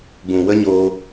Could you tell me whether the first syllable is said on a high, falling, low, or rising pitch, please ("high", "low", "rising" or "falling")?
low